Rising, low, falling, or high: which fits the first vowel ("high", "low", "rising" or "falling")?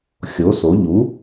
rising